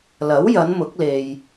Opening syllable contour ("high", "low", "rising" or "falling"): rising